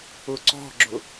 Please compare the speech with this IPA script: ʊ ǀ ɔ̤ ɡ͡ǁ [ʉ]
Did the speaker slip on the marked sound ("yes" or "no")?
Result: yes